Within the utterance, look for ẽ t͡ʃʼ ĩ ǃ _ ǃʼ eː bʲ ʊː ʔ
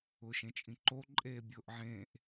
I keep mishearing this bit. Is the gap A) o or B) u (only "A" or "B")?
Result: A